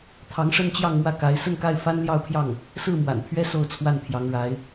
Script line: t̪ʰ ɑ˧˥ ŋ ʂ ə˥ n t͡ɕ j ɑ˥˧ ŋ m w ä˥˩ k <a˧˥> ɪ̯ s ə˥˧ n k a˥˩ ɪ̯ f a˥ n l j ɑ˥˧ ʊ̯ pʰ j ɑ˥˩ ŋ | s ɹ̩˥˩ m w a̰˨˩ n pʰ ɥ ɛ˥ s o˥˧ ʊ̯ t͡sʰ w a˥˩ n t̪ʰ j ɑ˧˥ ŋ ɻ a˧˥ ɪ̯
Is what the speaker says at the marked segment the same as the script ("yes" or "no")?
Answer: yes